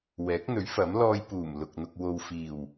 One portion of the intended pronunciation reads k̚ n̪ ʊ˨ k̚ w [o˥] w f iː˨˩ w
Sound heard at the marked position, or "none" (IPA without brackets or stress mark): o˨